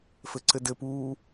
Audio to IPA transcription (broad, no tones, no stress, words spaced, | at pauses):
fɘǀɘdɘpuː